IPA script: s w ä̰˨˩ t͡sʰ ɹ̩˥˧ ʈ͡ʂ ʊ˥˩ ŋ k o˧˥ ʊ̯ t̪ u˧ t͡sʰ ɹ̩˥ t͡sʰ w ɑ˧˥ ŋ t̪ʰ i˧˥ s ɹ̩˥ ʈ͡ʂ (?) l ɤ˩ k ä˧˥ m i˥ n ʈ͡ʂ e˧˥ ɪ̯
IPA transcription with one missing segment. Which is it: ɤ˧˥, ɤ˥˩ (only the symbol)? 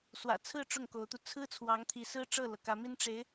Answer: ɤ˥˩